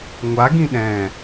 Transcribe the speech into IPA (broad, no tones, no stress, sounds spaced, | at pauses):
ŋʷ a ɡ ĩ ɗ ɛ̃